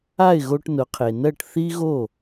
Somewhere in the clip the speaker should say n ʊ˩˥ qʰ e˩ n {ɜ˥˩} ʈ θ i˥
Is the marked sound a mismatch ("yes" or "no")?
no